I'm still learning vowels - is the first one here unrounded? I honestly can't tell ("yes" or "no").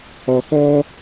no